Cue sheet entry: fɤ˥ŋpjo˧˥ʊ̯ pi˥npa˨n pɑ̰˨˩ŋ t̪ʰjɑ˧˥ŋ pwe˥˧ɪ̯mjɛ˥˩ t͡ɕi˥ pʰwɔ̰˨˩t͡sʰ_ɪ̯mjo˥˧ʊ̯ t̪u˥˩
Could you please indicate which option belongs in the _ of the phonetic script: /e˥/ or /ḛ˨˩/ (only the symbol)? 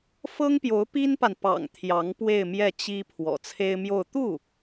e˥